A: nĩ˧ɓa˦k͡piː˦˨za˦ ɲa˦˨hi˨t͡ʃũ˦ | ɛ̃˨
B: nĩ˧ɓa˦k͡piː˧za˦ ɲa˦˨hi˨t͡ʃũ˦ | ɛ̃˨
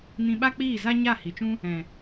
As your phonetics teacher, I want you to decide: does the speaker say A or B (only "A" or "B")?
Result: A